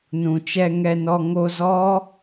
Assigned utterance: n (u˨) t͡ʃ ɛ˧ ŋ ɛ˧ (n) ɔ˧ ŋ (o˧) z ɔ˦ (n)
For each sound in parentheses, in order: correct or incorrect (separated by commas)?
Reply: incorrect, correct, correct, incorrect